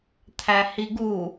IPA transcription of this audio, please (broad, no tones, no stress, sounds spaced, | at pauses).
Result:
t̪ʰ æ h i ɡ u